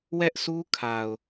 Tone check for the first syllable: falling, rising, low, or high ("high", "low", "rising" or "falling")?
high